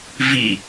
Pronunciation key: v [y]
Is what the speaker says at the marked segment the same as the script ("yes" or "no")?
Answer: no